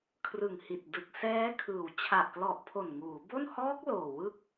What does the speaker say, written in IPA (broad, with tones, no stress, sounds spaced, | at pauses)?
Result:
kʰ r ɯ˨˩ ŋ h i˨˩ t̚ d ɯ˨˩ k̚ s ɛː˦˥ kʰ ɯː˨˩ w t͡ɕʰ a˨˩ ʔ k l ɔ˨˩ ʔ pʰ o˨˩ n ŋ uː˩˦ b o˥˩ n h ɔː˦˥ k̚ l oː˨˩ w ɯ˦˥ k̚